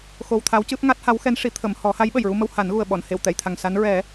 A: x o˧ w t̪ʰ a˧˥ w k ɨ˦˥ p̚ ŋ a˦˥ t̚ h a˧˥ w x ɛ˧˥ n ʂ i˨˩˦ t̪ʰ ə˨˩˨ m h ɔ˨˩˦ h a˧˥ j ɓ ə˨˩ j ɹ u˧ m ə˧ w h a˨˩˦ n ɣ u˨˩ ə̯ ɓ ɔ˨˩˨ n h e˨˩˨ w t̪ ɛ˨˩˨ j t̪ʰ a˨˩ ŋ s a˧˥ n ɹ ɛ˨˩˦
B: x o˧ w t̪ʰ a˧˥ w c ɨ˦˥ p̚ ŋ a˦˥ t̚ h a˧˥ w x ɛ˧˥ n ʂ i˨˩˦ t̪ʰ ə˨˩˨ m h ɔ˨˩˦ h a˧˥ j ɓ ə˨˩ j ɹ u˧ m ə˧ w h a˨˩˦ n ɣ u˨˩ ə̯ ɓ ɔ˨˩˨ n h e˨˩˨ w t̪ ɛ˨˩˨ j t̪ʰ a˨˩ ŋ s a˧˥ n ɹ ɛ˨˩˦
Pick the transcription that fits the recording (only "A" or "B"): B